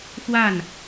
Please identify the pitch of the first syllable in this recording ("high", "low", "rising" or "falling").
falling